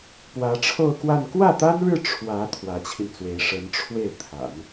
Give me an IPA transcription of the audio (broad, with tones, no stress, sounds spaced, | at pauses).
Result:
p w ä˧˥ ʈ͡ʂʰ o˥˧ ʊ̯ k w a˥˧ n k w ä˥˩ t̪ a˥ n ɻ ɻ̩˥˩ ʈ͡ʂʰ w ä˧˥ t̪ʰ w ä˧˥ t͡ɕʰ i˧ n t͡s w e˧˥ ɪ̯ ʂ ə˧˥ n ʈ͡ʂʰ w e˥˩ ɪ̯ t̪ʰ a̰˨˩˦ n